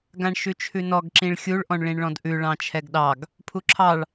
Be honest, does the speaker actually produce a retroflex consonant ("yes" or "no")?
yes